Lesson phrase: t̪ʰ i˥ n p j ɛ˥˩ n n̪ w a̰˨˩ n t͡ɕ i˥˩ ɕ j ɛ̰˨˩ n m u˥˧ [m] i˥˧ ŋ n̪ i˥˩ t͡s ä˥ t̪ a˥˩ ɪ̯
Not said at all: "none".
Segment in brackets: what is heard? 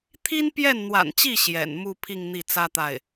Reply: pʰ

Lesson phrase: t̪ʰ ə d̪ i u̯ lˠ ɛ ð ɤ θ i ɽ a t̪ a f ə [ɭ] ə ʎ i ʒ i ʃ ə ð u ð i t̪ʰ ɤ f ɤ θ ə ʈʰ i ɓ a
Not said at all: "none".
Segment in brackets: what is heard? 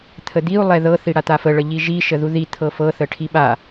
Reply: ɭ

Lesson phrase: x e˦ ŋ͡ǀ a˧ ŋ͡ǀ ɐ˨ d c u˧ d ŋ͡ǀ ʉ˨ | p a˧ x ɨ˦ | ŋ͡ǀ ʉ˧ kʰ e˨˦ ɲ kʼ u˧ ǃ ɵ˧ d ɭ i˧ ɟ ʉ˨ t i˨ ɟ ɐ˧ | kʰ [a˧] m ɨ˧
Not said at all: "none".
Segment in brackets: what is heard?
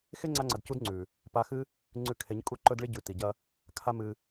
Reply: a˦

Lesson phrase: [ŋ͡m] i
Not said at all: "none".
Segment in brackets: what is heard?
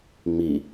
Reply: ŋ͡m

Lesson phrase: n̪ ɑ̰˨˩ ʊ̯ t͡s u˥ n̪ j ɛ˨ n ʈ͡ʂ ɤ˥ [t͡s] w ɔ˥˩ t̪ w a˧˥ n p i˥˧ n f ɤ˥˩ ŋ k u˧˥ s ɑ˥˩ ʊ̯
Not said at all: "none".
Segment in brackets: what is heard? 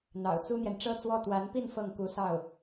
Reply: t͡s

